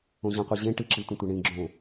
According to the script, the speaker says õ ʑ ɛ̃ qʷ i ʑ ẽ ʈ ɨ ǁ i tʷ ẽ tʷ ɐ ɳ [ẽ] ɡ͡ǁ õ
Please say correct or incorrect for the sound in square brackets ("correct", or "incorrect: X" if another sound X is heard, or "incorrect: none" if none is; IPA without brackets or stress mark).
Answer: incorrect: ĩ